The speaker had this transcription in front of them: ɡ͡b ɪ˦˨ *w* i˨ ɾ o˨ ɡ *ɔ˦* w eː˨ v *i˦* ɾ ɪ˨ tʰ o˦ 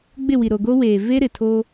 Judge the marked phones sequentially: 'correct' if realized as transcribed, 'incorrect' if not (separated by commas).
correct, incorrect, incorrect